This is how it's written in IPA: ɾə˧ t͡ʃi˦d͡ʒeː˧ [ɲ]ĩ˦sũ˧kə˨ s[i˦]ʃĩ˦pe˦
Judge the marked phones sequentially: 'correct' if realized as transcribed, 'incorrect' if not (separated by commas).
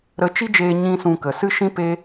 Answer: correct, incorrect